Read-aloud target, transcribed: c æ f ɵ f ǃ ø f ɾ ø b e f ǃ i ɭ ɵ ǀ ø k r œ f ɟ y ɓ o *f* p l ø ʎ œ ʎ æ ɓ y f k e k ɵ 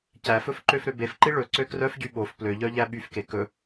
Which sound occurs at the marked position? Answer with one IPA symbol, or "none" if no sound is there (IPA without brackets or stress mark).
f